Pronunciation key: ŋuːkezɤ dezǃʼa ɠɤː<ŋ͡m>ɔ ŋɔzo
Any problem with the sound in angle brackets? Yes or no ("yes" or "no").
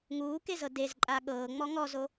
no